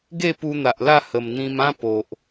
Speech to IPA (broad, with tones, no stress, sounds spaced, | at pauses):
ɡ e˥˧ p u˧ n̪ a˨ ʔ l a˥˧ h ə˨˩ m n̪ ĩ˧ m ã˦ p o˨ ʔ